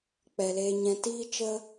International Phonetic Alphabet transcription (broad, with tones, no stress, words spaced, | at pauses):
k͡pɛ˨leː˧ɲɛ̃˧ tiː˦t͡ʃə˦